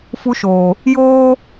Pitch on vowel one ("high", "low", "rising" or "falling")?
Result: high